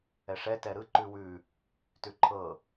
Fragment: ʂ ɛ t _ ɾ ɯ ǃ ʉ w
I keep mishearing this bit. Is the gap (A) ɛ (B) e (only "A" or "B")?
A